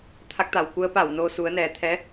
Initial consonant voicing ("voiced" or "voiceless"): voiceless